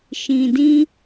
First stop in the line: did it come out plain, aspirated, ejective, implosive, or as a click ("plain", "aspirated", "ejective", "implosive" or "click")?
plain